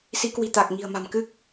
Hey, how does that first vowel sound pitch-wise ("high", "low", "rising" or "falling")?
rising